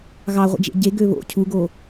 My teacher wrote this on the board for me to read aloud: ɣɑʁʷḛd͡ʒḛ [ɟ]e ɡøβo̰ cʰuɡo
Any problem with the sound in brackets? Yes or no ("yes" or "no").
no